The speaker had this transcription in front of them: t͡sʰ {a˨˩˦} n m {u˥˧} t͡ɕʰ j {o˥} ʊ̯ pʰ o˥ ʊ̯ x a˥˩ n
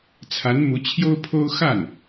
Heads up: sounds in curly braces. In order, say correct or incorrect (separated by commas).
incorrect, incorrect, correct